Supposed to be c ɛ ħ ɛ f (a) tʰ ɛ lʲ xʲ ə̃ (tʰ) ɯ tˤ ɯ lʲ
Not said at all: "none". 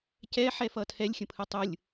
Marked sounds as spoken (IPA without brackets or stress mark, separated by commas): ʌ, pʰ